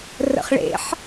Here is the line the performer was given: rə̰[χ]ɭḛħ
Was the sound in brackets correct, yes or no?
yes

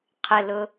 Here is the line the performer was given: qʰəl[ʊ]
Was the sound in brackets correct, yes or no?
yes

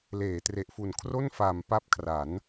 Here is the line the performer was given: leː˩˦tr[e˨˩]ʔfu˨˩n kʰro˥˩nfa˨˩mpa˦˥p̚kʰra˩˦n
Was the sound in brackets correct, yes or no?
yes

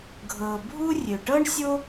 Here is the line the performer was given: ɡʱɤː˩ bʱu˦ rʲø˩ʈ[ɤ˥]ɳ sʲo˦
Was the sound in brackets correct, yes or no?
yes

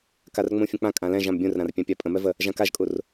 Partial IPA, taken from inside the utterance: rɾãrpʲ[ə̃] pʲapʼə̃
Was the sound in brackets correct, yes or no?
no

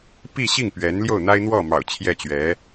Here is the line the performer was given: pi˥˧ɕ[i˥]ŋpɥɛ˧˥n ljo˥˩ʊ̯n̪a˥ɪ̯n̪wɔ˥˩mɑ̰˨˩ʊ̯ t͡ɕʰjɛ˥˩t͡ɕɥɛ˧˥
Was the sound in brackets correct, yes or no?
no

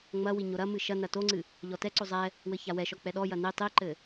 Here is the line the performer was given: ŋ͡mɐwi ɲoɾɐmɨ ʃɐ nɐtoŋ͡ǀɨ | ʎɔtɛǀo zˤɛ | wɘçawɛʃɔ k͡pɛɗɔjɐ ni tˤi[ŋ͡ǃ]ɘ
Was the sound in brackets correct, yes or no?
no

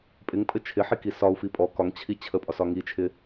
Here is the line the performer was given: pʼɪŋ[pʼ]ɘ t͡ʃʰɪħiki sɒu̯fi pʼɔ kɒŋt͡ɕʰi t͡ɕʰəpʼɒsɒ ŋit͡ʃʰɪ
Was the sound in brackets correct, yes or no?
yes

